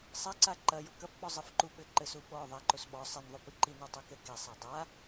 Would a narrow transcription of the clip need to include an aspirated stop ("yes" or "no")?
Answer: no